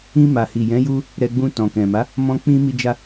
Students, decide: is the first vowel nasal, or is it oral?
nasal